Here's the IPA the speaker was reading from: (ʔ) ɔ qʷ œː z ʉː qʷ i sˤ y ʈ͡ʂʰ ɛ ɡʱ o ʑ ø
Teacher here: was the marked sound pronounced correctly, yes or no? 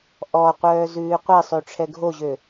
yes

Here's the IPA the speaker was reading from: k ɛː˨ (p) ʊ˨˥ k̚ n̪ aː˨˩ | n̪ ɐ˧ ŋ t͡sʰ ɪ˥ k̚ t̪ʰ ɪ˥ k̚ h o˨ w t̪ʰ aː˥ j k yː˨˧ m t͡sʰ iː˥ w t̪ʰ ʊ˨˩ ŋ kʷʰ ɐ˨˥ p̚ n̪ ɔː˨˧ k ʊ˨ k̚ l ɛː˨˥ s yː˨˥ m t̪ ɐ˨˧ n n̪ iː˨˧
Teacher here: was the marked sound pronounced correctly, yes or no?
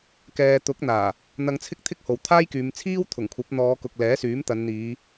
no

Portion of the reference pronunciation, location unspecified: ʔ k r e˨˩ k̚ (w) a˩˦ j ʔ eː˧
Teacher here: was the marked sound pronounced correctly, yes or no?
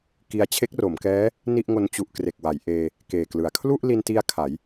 yes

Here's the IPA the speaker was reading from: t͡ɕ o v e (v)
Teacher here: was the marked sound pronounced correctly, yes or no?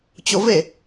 no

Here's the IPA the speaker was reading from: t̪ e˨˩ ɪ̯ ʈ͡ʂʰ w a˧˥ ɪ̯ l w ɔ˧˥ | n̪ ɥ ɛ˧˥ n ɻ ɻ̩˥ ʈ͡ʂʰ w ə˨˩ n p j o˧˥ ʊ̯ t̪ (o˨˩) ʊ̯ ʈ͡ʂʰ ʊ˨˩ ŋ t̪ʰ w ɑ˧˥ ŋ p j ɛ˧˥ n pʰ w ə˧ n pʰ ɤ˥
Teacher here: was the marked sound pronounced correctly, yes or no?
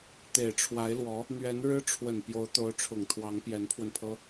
no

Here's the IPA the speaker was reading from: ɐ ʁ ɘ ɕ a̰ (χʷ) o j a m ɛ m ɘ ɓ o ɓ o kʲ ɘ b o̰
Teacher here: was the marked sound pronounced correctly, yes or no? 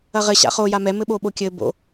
no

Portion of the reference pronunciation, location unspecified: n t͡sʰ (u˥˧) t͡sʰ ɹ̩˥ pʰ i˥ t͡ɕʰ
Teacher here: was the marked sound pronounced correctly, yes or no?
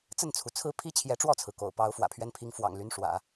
no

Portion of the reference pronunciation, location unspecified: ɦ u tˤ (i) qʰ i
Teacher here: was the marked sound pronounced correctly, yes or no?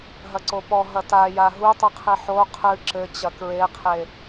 no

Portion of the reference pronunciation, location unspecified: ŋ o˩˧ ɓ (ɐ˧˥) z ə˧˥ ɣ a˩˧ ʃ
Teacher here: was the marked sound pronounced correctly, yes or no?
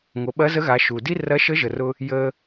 yes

